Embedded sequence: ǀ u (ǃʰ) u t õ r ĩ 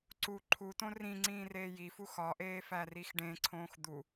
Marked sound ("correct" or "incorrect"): correct